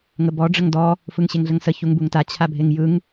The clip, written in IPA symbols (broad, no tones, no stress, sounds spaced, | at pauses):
ŋ ə b ɔ ɖ͡ʐ ə ŋ d ɔ | f ɯ ŋ ɕ e ŋ ɮ ə ŋ s ə ç u ŋ b u ŋ t a t͡ɕʰ a bʱ e ŋ j ɯ ŋ